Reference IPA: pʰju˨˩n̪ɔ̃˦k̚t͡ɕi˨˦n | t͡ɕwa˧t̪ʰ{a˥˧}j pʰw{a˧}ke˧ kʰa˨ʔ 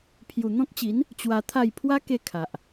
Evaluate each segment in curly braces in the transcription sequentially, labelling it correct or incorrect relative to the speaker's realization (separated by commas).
correct, incorrect